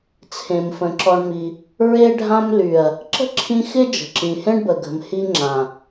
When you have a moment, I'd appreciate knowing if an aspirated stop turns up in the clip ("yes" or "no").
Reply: yes